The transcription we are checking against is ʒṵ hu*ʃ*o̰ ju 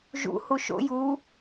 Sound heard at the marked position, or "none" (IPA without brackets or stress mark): ʃ